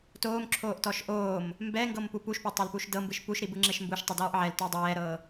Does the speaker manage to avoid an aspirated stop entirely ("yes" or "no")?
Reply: no